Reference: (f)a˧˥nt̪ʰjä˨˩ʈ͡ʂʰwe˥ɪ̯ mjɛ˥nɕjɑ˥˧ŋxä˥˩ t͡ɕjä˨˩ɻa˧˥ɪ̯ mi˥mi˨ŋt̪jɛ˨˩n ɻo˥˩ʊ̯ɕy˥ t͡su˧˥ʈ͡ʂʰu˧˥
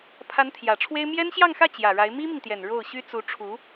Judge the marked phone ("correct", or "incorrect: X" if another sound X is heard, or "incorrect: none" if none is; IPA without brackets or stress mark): incorrect: pʰ